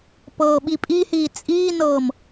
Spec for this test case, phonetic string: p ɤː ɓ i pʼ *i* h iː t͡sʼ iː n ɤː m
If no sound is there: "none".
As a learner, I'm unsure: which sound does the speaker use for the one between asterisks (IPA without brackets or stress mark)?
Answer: i